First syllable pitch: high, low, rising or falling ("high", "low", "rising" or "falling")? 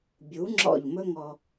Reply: rising